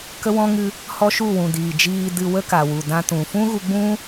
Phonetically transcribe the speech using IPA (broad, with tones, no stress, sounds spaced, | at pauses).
k ə˦ w ɔ̃˦ ŋ ɨ˦ | h ɔ˦ ʃ u˦˨ w ũ˨ d iː˨ d͡ʒ iː˧ d ɨ˧ w ə˦ k a˨ w u˨ d ã˧ t ũ˨ f ũ˦ ɣ u˧ ɡ͡b ũ˦